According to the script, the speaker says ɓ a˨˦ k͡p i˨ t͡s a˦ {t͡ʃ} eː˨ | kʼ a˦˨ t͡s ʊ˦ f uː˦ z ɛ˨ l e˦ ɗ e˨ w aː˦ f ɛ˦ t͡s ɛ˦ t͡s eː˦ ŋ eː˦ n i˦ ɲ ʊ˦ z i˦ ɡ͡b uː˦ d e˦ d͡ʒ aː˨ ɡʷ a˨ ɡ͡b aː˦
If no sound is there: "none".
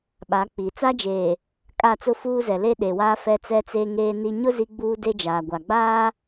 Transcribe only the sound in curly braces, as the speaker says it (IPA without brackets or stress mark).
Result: d͡ʒ